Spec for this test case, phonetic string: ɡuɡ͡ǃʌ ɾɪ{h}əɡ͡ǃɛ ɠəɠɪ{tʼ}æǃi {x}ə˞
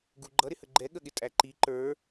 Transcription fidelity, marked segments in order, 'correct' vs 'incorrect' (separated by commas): correct, correct, incorrect